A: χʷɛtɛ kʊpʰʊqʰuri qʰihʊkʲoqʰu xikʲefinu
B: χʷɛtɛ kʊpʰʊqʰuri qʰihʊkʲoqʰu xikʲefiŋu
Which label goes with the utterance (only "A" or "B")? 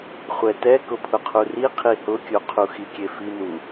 A